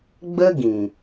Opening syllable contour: high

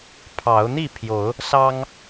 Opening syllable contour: rising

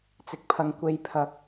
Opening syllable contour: low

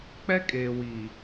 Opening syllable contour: high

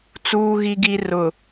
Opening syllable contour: low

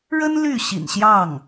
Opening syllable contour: high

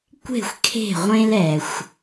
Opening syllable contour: falling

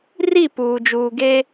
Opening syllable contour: falling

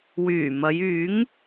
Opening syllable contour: low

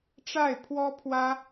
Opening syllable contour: falling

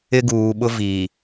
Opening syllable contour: high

